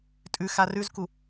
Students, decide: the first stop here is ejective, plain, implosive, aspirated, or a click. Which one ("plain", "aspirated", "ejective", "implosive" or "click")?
ejective